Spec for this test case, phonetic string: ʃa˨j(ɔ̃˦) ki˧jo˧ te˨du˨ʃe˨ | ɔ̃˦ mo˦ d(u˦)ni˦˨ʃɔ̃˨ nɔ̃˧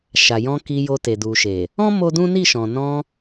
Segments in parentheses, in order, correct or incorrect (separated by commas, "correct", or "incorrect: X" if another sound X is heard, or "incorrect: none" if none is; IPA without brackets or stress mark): incorrect: ɔ̃˧, incorrect: ũ˦